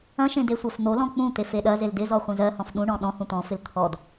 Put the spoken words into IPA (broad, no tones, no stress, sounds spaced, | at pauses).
ɐ̃ ʃ ẽ d e sʷ ɜ f n̪ o l ɔ̃ k͡p ũ t̪ e f e ɗ ɐ z e l d ɪ z ɔ χʷ ẽ z ɜ h ɔ̃ f ɗ ũ ɳ ɔ̃ ɗ ɔ̃ h ũ t̪ ɔ̃ f ɪ l t̪ʰ ɔ d